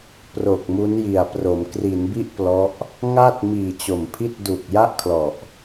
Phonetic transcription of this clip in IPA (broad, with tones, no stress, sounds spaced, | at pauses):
p r o˨˩ k̚ m u˦˥ n j i˨˩ a̯ p r o˩˦ m k r i˩˦ n b i˥˩ ʔ p l ɔ˦˥ ʔ | ŋ a˥˩ t̚ m iː˨˩ t͡ɕ o˨˩ m pʰ i˥˩ t̚ d u˨˩ k̚ j a˥˩ ʔ kʰ l ɔ˨˩ ʔ